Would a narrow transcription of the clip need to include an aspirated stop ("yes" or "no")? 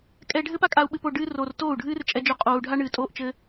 no